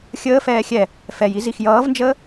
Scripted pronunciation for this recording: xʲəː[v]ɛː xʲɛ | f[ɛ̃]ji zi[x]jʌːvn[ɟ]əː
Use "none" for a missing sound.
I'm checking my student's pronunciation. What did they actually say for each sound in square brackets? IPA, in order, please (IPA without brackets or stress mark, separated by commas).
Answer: f, ɛ, x, d͡ʒ